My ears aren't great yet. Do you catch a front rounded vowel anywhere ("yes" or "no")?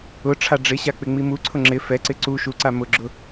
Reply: no